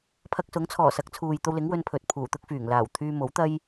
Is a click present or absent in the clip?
absent